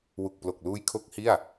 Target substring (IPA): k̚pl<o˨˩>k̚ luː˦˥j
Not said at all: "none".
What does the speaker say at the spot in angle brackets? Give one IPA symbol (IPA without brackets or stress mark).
o˨˩